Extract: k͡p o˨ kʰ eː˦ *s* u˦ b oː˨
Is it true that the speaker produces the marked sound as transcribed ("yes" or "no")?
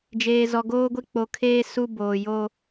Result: yes